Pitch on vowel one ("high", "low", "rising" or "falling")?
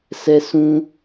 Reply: high